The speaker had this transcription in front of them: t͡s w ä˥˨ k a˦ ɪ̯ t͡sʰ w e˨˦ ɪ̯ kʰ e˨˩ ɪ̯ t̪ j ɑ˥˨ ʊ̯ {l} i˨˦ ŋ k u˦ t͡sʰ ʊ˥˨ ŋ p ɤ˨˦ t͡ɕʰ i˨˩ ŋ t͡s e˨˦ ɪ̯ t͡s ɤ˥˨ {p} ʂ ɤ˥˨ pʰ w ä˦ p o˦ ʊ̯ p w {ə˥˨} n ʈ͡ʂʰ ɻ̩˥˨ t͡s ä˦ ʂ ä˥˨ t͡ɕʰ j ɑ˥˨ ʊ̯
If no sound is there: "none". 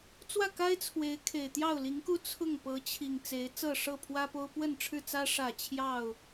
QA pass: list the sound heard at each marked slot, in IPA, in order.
l, none, ə˥˨

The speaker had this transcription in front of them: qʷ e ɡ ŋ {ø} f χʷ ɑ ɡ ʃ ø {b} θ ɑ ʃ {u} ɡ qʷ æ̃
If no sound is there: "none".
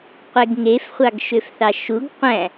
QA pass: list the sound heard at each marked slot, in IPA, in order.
e, f, u

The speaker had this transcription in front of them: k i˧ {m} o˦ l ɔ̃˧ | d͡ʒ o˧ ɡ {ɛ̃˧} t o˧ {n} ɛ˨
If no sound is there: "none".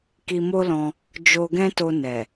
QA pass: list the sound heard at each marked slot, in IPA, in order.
m, ɛ̃˦, n

